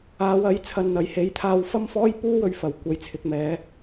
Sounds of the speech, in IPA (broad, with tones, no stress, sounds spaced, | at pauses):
aː˨˧ w ɐ˨˥ j t͡sʰ ɐ˧ n n̪ ɐ˨˧ j h e˨˥ j t̪ʰ aː˧ w f ɐ˥ m f ɔː˥ j p uː˥ w ɵ˧ ɥ f ɐ˨˩ w kʷ ɐ˨ j t͡sʰ ɪ˨ k̚ m ɛː˨˧